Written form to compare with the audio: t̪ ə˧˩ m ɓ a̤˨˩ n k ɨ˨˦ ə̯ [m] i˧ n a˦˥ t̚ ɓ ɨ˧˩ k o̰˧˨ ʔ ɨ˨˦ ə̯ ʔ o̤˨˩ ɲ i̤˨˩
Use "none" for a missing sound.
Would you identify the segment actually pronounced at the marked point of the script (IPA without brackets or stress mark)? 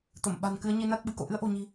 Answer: ɲ